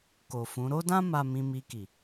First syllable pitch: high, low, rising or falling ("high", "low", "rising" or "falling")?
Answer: low